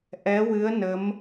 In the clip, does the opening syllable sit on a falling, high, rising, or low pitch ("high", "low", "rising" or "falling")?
rising